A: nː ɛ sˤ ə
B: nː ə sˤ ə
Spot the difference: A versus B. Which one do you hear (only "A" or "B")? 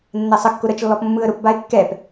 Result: A